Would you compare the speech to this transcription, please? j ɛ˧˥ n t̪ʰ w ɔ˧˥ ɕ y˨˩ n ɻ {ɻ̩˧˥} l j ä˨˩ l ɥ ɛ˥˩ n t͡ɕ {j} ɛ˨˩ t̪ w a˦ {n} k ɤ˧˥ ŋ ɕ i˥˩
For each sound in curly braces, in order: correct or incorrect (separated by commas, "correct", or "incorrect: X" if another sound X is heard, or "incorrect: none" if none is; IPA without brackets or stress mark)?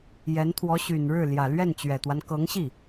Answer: incorrect: ɻ̩˥˩, incorrect: ɥ, correct